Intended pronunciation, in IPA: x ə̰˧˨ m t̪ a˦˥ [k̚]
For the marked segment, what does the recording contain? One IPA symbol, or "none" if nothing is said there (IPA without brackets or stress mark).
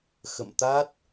t̚